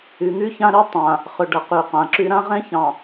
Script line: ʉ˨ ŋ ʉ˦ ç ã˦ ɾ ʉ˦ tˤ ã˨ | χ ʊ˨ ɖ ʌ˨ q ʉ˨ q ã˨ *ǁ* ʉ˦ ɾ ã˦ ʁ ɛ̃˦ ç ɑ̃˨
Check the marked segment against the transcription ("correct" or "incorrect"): correct